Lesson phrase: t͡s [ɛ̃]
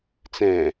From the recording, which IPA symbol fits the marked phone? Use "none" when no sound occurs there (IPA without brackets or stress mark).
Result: ɛ̃